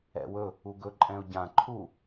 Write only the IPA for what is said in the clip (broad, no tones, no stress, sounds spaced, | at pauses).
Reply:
ɛ̰ w ɵ | u ɡ ɵ ǃʼ ɛ̃ ʊ̯ ɟ ã ǃʰ u